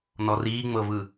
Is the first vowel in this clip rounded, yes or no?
yes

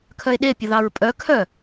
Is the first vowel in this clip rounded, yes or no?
yes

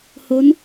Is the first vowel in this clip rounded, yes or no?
yes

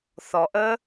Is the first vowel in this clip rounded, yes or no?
yes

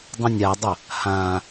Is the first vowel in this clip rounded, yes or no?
no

